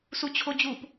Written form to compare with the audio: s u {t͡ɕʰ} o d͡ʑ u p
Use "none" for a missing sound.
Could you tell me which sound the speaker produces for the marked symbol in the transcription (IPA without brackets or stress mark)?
t͡ɕʰ